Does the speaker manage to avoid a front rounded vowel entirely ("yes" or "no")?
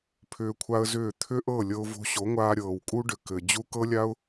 no